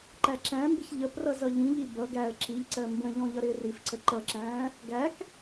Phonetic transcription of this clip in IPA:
ǃæǁæ̃mbɪç ʎəprʌ zʌʎĩʎi bʌ ɡæə̯ ǁiʎǀɜ mbə̃ʎɔ̃ ʎʌɾɪːrifǀə ǃʌǁæ̃ː | ɡæk

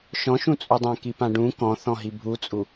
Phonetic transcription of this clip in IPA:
ʃɔ̃ʃũt͡sʼudˤã kipãɖũ kɔ̃θɔ̃ɦi bʱut͡sʼu

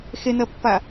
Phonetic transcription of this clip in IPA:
xen̪ɜpːa

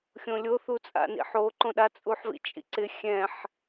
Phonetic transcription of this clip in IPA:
xʲõlʲo θut͡sʼa̰nḭħo ǃõɗa t͡sʼuħvḭt͡ʃʼḭǀɪ xʲɛ̃ħ

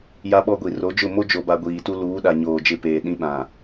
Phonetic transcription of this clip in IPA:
ja˦ɓɔ˦ɡʷi˨ ro˨˦d͡ʒʊ˦˨ mo˦d͡ʒo˨ba˨ ɡʷiː˨tu˦ luː˨˦ɗa˨ ɲoː˨d͡ʒɪ˦˨peː˨ ɗĩ˦ɓã˨

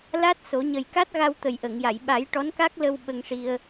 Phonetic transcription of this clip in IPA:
la˦˥t̚so˨˩˦ɲə˨˩jka˦˥t̚ ɣa˧wt̪ə˨˩jʔə˨˩˨ŋja˨˩˨j ɓa˨˩˦j ʈɔ˧˥nka˦˥k̚ lə˧w ɓə˧ŋʂi˧ə̯

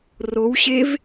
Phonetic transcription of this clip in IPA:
rowɕev

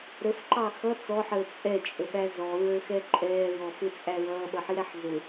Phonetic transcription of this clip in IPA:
ɾəfǃɑ xʌ t͡sɔħəː t͡sʼɛt͡ʃʼəɓæ zɔɹə˞xɛ ǃʼɛːɹɔfɪt͡sʼæ ɹʌːɓʌħiɾæħ zʊ

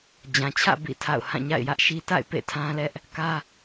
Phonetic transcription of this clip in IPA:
d͡ʑã˨t͡ɕʰä̰˦˨ bḭ˦˨tʰa̰˦˨ʊ̯ hã˦˨ɲa̰˦˨ɪ̯jä˦ʔʃi˦ ta̰˦˨ɪ̯ pḛ˦˨tʰã˦lɛ˦ʔ | kä˦

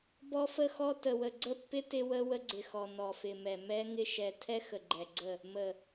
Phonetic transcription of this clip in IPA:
bɔ˦fə˦xɔ˦ tə˨wə˨ ɡ͡ǀə˦˨pːɪ˦ tɪ˦wə˦ wə˦ɡ͡ǀɪ˨xɔ˨ nɔ˨fɪ˨mɛ˨ mɛ˦ŋɪ˦ ʃɛ˨ tʰɛ˦xə˨ɡ͡ǃɛ˨ ɡ͡ǀə˦˨ | mə˨

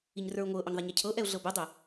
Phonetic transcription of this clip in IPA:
iɲrə˞ʊ̯ŋʷɤʔøɲ ðˤɛɲɛcʰɤʔɛʊ̯ ɮɤbʏdˤʏ

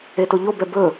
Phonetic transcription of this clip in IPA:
etoʎobɛ bɵ

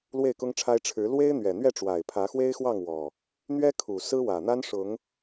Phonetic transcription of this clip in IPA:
lwe˥˨ɪ̯kʊ˦ŋʈ͡ʂʰa˦ɪ̯ ʈ͡ʂʰɻ̩˨˦ lwe˦ɪ̯n̪ɥɛ˨˩n̪ɥɛ˥˨ʈ͡ʂwa˨˩ɪ̯ pʰä˨˦xwe˦ɪ̯xwɑ˥˨ŋ wɔ˨˩ | n̪ɥɛ˦ kʰu˨˩ sɹ̩˦wä˨˩ n̪a˦nʂʊ˨˦ŋ

